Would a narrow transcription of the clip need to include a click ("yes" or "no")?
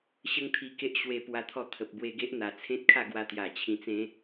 no